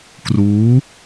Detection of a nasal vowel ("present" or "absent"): absent